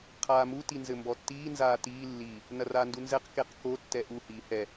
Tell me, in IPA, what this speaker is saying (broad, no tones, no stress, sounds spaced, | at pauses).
qʰ aː m u t i n z ɘ m b ɔ tː iː n z aː t iː lː i | n ɐ r aː n d u n z ɛ q k e q k o tː ɛ ʔ u h iː h ɛ